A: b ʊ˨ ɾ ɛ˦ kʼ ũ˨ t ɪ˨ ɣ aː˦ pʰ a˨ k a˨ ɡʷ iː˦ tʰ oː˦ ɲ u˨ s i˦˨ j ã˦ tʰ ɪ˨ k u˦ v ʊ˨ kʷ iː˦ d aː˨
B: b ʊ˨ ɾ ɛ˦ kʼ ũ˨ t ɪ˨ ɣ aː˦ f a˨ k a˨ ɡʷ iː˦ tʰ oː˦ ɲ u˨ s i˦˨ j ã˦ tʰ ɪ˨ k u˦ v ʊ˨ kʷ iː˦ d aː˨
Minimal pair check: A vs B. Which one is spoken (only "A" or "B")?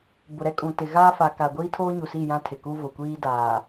B